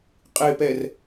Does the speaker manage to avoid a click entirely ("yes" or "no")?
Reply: yes